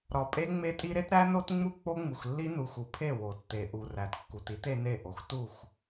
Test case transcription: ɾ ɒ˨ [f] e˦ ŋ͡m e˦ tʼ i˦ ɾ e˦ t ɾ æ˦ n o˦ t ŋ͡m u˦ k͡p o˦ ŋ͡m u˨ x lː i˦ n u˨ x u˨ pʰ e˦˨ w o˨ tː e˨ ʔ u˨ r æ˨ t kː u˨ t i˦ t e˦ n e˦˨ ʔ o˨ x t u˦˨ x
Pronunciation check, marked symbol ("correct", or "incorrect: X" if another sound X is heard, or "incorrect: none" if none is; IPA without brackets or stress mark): incorrect: pʼ